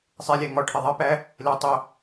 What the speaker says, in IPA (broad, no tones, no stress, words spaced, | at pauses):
sˤelʲæ ŋɒʈʰe ðˤipæ | le tˤo